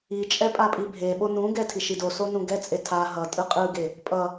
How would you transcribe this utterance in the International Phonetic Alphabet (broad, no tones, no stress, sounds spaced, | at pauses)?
i t͡ʃʼ ɛ pʼ a pʼ i bʱ e ɓ o n ũ ɡ ɛ tʰ i ʃ i d o s o n ũ ɡ ɛ t͡sʼ e tʰ a ɦ ʌ tʼ ɯ qʼ ɯ ɡ e | pʼ ʌ